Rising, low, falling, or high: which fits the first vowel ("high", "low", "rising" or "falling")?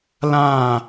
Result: falling